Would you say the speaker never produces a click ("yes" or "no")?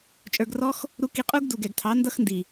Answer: yes